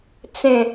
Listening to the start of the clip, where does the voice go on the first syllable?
falling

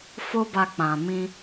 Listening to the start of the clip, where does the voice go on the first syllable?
high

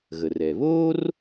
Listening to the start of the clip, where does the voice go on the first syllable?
low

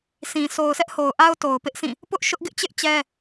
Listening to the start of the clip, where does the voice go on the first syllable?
low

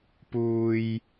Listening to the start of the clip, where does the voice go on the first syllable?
low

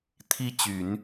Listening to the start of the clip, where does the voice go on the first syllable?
high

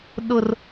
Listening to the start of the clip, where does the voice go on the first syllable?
high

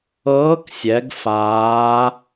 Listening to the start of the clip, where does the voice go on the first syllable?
rising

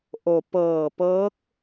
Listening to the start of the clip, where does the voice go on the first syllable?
low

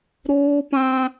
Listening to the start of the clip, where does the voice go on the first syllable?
high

